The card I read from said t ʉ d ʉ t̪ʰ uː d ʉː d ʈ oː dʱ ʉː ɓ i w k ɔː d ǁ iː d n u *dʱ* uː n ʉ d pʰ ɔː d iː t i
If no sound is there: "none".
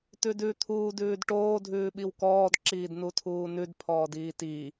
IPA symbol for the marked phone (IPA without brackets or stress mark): tʰ